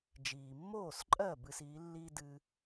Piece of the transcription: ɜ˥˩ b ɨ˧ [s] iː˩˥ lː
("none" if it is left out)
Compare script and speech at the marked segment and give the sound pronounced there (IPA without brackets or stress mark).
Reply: s